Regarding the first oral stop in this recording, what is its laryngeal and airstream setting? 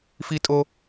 ejective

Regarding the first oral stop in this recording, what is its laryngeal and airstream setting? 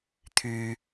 aspirated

